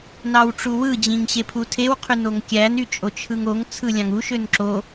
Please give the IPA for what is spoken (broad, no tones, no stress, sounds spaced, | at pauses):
n ɑ w ʈ͡ʂ u w ɯ d͡ʑ ĩ ŋ ɕ e pʰ u tʰ e w qʰ y n o ŋ kʲ æ n y t͡ʃʼ o t͡ʃʰ ɯ ŋ o ŋ t͡sʰ ɯ lʲ ɑ̃ ŋ u ʃ ø n ǁ o